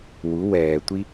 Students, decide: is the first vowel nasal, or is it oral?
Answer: oral